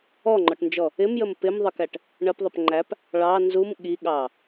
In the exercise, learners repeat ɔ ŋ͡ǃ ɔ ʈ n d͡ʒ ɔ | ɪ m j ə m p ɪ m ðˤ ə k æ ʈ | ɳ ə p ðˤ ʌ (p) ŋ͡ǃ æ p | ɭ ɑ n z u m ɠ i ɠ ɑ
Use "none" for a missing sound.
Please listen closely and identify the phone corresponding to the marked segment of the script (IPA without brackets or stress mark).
p